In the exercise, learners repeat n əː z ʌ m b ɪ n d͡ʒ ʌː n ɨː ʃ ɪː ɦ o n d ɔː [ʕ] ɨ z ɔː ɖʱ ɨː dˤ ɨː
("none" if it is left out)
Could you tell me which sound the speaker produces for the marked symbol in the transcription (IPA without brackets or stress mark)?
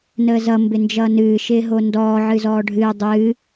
ʕ